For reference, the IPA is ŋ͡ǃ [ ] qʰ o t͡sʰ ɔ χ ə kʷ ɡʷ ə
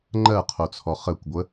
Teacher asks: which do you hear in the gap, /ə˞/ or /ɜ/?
ɜ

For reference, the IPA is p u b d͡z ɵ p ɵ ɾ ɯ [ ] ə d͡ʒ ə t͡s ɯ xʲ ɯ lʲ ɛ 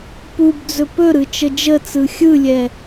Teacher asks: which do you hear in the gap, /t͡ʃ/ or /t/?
t͡ʃ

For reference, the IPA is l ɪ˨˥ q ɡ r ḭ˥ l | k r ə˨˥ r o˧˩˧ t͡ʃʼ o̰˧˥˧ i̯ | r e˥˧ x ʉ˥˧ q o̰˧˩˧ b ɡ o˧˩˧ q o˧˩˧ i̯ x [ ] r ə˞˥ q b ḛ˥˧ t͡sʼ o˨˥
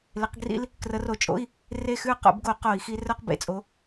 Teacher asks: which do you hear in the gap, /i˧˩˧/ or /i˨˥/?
i˨˥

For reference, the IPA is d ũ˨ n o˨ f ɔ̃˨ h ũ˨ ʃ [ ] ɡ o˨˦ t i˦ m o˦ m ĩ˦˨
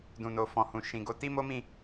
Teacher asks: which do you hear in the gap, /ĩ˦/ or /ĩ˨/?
ĩ˨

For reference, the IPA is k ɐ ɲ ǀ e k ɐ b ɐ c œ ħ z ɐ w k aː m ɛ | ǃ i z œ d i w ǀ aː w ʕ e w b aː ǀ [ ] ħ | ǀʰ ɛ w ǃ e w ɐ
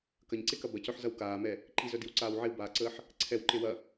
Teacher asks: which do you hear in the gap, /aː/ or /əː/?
əː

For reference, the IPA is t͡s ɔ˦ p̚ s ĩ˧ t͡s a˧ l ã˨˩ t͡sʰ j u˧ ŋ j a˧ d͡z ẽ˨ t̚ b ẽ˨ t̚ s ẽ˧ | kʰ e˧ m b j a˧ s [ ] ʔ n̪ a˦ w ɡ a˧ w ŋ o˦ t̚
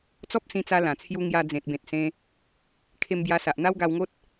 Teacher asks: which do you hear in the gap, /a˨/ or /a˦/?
a˨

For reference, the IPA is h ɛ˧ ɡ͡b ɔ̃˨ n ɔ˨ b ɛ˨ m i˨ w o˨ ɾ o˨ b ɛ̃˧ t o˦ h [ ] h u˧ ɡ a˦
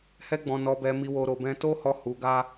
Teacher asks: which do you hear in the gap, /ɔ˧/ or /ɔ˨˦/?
ɔ˧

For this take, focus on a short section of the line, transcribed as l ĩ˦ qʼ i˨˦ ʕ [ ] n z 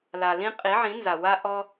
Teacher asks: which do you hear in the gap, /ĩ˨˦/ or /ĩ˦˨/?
ĩ˨˦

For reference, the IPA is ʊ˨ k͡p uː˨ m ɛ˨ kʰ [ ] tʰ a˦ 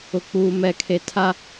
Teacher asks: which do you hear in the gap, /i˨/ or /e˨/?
e˨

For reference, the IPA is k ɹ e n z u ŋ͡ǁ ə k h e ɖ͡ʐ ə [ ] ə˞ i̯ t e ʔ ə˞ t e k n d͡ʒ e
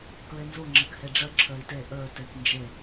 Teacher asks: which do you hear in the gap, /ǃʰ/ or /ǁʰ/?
ǁʰ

